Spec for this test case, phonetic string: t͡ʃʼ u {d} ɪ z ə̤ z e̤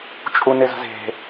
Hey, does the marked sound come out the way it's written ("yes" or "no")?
no